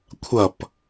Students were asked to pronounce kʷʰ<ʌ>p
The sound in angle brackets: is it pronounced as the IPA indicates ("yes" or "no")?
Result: yes